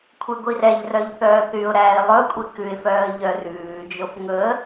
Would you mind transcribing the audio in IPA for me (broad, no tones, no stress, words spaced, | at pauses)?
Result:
kʷʰeɡʷirɛʎrœʎ θœːθyʊ̯ɾæːɪ̯ lˠɵkʷʼi kʉɪ̯fœːə̯ ʎœrʉːd͡ʒof ŋɵə̯